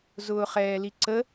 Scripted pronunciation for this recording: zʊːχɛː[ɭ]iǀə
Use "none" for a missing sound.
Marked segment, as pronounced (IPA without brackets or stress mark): l